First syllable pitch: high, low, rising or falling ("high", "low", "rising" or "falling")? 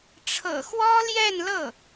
low